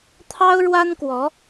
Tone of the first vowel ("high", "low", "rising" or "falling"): high